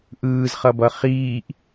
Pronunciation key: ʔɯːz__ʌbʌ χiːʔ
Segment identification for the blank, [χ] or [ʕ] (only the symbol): χ